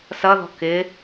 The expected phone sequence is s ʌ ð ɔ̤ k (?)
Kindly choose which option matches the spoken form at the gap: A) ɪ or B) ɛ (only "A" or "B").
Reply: A